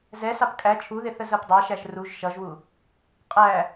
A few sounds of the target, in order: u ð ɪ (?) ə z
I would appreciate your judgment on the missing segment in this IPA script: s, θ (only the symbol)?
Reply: θ